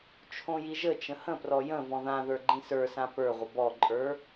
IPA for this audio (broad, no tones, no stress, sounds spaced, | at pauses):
t͡ʃʰ õ j i ʒ ə t͡ʃ ə̃ h ə̃ p r ɔ j ə̃ v ɔ̃ ð ã ð ə˞ ɡ͡ǃ ĩ s ə˞ s ã p ə˞ ʁʷ ə b ɔ ǃʼ ə˞